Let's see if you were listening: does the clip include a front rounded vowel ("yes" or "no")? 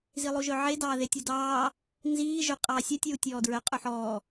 yes